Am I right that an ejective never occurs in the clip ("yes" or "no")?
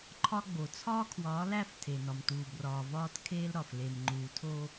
yes